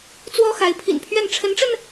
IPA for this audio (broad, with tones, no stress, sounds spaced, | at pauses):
t͡s w ɔ˥ x a˧˥ ɪ̯ pʰ ḭ˨˩ n pʰ ɥ ɛ˥˩ n ʈ͡ʂʰ ə˧˥ n ʈ͡ʂ ə˧ n